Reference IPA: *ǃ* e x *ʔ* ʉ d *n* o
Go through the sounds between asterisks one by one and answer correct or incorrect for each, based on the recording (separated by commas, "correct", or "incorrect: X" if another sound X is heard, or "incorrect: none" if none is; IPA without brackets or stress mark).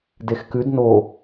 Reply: incorrect: d, incorrect: k, correct